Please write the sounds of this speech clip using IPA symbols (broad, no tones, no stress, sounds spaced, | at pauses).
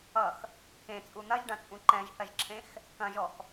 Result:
ʌ x | k ẽ t͡sʼ u n̪ ɐ ʒ ɖ ɐ̃ t͡sʼ ũ ǃ ɛ̃ ʒ θ ɐ ʒ ǁʰ ẽ x | k ɐ̃ ʒ ɔ x